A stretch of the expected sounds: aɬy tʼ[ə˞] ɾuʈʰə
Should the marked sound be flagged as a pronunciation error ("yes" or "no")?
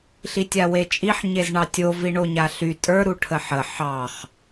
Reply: no